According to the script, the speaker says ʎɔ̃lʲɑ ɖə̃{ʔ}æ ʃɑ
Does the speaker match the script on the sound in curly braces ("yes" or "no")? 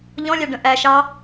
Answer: yes